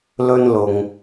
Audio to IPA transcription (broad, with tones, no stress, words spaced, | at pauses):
lɵ˧nlʊ˨ŋ